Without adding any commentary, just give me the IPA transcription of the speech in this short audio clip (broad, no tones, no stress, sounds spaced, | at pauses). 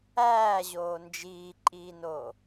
æː ʑ oː n d͡ʒ iː ǃʼ iː n oː